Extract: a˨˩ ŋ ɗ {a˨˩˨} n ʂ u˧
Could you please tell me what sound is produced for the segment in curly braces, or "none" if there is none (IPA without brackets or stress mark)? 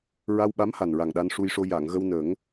a˧